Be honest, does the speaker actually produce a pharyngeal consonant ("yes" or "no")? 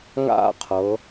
no